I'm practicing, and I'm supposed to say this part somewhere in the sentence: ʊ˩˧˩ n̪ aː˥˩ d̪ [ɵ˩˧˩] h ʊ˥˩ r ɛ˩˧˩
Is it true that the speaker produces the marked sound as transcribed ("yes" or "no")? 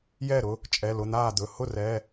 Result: yes